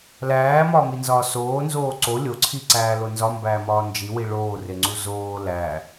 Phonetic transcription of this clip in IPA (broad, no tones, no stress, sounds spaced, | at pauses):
l æː m ɒː m i n z ɒː s oː n z oː ǀ o lʲ o ǀʰ i ǀ æː l o n z ɒ m b æː m ɒː n d͡ʒ i w i ɭ oː r e ŋ͡ǀ u z oː l æ